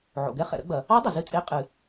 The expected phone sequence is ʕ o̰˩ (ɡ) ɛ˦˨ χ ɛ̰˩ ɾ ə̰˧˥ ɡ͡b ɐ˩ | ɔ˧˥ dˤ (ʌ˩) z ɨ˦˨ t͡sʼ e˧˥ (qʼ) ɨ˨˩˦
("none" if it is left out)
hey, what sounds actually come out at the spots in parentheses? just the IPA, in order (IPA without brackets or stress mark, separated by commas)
ɡ, ʌ˩, qʼ